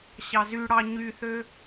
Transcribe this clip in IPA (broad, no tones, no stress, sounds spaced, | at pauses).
ɕ ɑ z y ɽ ɑ ɲ y θ ø